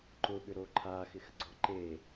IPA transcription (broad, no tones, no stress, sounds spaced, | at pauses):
ǃ ʊ ɓ ʏ ɾ o ǃʰ a x ɪ x ɡ͡ǀ ɔ ǃ e